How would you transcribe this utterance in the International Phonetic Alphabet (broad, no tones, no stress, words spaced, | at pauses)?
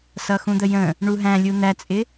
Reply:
sʌxũd̪əjə̃ | ɳuɦæ̃ lʲun̪æt͡sʼɪ